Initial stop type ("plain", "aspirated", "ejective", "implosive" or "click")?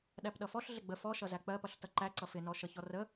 implosive